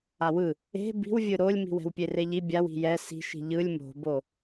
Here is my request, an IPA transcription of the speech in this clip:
a w ɯ | e̤ b i̤ w vʲ ɯ ɾ o lʲ m i̤ w ɛ̤ w pʲ e r e ʎ i bʲ a w i̤ j ɛ s i̤ ʃ i̤ ʎ ɯ lʲ m o̤ b o

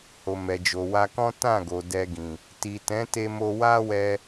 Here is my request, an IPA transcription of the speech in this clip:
h o˨ m ɛ˨ d͡ʒ o˨ w a˧ k ɔ̃˦ t ã˦˨ ɡ o˨ d ɛ˧ ɡ ĩ˨ | t i˨ t ɛ̃˨˦ t e˧ m o˧ w a˦ w ɛ˧

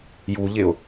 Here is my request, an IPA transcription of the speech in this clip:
j u ʎ ɪ ʊ̯

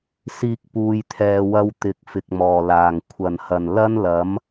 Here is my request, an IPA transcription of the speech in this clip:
s iː˧ k̚ p uː˨ j t̪ʰ ɛː˨ w ɐ˧ w t̪ ɪ˨˥ k̚ f ɪ˨ k̚ m ɔː˨˩ l aː˨˩ ŋ kʷʰ ɐ˨˩ n h ɐ˨˩ n l ɐ˥ n l ɐ˨˥ m

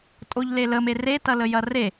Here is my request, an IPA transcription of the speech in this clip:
tʼ o ʎ l e l ə m e r e t ɐ l ə j ɐ r e

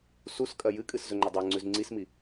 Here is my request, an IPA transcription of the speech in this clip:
s u s kʼ ɐ j ɨ kʼ ɨ s z ɵ ŋ͡ǃ ɐ dˤ a ŋ͡ǀ ʉ z ŋ͡ǀ i s m i

